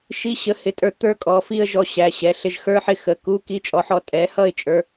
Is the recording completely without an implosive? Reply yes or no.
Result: yes